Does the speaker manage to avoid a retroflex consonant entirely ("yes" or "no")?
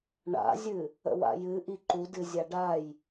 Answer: no